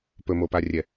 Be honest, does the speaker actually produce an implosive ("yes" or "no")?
no